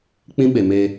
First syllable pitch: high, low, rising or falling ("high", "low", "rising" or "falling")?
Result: high